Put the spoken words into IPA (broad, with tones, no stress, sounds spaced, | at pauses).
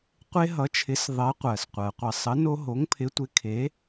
qʷ e˦ ɦ ʌ˨˥ t͡ʃʰ ɪ˨˥ s ðˤ ɜ˨˥ qʷ ɜ˩ s qʷ ɜ˩ qʷ ə˧˩˧ sˤ ə˨˥ n o˦ ɦ o˨˥ ŋ pʰ ɪ˨˥ tʷ ɪ˨˥ kʰ e˨˥